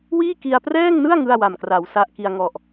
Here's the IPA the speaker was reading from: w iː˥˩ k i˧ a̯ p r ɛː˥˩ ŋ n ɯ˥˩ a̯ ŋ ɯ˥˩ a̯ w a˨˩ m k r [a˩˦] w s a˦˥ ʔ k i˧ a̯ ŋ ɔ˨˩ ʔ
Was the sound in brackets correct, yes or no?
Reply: yes